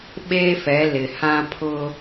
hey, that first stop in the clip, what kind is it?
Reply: implosive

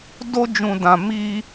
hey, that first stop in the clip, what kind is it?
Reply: plain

